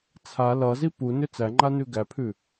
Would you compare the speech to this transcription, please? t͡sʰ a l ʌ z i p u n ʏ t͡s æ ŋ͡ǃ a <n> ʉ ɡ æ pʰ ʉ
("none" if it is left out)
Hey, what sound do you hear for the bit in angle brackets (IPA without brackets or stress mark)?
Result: n